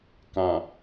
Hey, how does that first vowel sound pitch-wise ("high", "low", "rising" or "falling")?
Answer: low